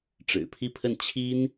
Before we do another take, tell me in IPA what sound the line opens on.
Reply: ʈ͡ʂ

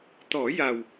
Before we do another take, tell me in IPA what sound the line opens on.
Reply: t̪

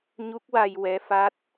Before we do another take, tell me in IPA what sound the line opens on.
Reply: ɲ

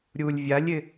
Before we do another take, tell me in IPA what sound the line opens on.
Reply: ɾʲ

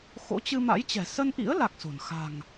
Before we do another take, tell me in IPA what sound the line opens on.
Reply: x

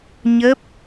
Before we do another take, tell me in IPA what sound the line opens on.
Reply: ɲ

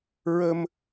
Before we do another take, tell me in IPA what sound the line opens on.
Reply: ɹ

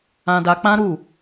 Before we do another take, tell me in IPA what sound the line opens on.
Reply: ã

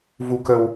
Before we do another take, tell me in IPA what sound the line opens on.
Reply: v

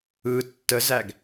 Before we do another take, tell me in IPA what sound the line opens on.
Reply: ɯ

